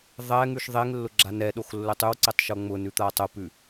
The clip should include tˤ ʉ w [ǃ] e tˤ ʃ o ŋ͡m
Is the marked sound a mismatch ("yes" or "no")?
yes